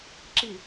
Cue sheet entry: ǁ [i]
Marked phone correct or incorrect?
correct